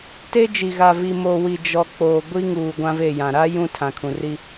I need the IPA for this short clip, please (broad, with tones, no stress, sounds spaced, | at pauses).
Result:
t e˦ d͡ʒ i˨ ɣ a˨ v i˨ m o˨ w i˨ d͡ʒ ɔ˨ k͡p oː˨ ɡʷ i˦ ŋ uː˨ ɡʷ ã˦ v e˦˨ j ã˨ ɾ a˦ j ũ˦ tʰ ã˨ kʰ ũ˨ r i˦